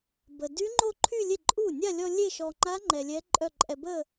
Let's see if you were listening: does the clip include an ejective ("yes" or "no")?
yes